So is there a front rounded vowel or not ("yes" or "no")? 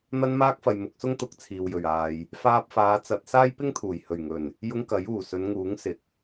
no